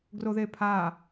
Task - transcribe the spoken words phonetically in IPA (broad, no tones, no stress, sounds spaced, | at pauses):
ɡ r o ð e pʰ a